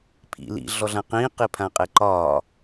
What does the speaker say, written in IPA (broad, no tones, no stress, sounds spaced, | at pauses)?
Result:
pʰ ḭ l ḭ ɮ ɔ ɮ ã q ĩː q i pʰ ã qʼ e ǃ ɒː